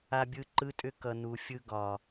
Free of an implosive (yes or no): yes